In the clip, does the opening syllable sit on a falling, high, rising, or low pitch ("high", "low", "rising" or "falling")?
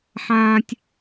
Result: low